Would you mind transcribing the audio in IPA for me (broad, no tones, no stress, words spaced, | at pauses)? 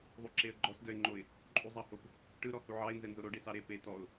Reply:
ðˤuǁeə̯ɡ͡ǃɔs dœɪ̯ŋ͡ǃoɪ̯ | ǃʼuzˤɑhop | ʈɯ ɾɔhuʕɑɪ̯ nzɛnzoɾo ɖesɑɾe pe tɔʊ̯